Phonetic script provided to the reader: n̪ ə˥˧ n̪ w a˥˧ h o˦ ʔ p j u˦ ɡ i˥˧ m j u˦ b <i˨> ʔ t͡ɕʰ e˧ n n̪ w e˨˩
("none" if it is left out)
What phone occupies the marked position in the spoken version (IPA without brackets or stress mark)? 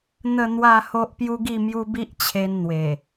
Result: i˦